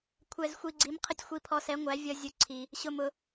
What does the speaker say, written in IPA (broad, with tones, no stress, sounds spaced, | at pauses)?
kʷʰ ɛ˧ z xʷ i˧ ɡ͡ǀ i˨˥ m qʰ ə˧ tʲ xʷ i˧ pʰ ɔ˧ s ɛ˨˥ ŋʷ æ˨˥ vʲ ʌ˧ zʲ ʊ˧ ǀʰ i˧ | ɕ ʊ˧ m ʊ˧